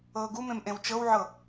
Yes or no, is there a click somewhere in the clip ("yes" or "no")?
no